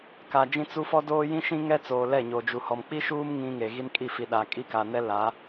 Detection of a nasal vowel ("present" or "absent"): present